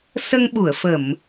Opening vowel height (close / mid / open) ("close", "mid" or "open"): mid